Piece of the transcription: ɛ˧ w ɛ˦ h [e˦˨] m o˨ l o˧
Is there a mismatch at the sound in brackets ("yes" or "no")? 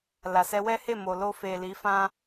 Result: no